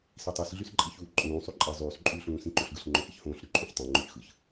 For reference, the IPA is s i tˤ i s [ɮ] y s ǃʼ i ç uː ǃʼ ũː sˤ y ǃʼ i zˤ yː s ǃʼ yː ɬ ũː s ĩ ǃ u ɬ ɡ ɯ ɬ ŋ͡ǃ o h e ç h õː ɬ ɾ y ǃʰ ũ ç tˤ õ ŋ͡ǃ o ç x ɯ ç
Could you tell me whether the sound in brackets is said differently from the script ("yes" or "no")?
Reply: no